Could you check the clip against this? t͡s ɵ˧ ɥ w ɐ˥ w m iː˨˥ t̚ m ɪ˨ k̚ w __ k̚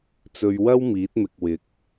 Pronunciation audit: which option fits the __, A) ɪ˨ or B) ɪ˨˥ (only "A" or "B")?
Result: B